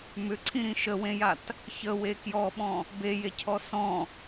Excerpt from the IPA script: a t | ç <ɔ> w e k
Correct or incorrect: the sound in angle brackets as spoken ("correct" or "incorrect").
incorrect